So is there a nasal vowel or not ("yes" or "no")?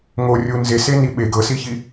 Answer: no